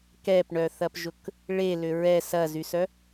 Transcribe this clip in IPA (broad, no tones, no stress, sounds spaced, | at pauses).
k ɛ p ɳ œ θ ɐ p ʒ ʊ k | ɭ e l ʏ ɹ ɛ s ɐ z y s œ